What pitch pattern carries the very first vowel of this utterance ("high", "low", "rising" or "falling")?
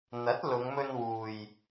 rising